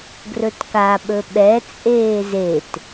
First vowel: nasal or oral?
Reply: oral